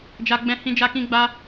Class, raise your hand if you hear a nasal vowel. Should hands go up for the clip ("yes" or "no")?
yes